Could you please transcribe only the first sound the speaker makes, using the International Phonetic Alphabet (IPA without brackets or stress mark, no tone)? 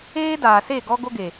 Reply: eː